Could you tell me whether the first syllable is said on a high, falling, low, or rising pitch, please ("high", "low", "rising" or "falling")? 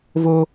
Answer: high